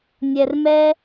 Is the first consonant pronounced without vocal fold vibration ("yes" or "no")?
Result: no